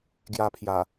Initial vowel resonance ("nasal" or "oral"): oral